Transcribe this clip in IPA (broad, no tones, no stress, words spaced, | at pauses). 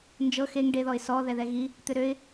nd͡ʒɤ xeŋ ɖe ðɔɪ̯sɔ ðɛðɛɣi | t̪ʏɾøɪ̯